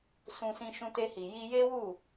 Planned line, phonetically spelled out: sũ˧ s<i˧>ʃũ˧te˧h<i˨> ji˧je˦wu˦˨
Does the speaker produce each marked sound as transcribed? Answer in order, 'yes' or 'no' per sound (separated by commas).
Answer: no, yes